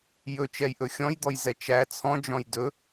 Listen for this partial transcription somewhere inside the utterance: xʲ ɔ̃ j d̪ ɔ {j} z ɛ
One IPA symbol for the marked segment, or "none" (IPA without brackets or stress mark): j